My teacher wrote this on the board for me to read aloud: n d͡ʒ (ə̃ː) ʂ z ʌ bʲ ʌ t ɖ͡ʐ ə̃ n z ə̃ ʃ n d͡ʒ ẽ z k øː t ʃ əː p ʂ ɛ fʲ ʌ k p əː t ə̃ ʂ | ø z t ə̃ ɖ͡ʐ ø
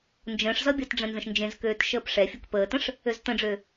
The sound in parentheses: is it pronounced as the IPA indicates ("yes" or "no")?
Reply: yes